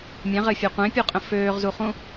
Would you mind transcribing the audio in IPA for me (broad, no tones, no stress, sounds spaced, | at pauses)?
mʲ ɛ̃ ʁ ɘː fʲ e qʷ ẽ pʲ u qʼ ə̃ f øː ʁ z u χ ũ